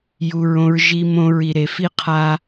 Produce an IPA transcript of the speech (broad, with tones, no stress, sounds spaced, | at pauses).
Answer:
j u˨ ɹ õ˧ ɹ ʒ i˧ m õ˧ ɹ i˨ ɾ e˨ f i˦ qʰ a˦